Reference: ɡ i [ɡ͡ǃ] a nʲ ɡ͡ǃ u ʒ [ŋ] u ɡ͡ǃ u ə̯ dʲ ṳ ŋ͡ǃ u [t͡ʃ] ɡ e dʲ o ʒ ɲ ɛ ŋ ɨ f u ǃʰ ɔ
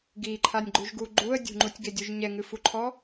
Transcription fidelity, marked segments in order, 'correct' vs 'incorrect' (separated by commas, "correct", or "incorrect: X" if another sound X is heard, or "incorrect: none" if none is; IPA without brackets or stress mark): incorrect: ǃʰ, incorrect: ɡ, incorrect: tʲ